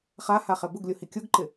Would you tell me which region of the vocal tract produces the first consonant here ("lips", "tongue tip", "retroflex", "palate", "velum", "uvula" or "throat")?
uvula